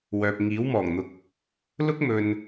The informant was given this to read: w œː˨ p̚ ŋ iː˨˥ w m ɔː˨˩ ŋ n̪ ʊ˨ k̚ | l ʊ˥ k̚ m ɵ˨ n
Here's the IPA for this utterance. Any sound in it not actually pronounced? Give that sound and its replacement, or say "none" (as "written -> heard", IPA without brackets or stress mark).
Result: none